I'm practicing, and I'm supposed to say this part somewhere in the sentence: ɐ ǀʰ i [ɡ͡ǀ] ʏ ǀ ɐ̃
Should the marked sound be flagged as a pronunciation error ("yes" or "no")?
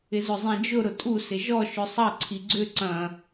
no